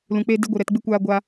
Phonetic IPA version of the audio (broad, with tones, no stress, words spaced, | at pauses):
lũ˨k͡pe˧ de˦ɡʷɨ˨ɾɛ˧tɡ͡bɨ˦ kʷaː˧ ɡʷa˧